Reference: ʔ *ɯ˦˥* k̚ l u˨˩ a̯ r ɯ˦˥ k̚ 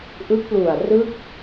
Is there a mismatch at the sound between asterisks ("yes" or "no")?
no